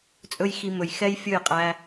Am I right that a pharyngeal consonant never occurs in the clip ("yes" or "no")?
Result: yes